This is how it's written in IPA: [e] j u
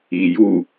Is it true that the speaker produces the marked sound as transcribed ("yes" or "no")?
no